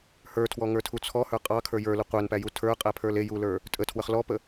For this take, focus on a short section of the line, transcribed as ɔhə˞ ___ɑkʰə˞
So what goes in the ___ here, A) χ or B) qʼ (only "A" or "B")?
B